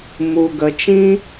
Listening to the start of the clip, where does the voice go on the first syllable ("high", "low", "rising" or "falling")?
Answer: low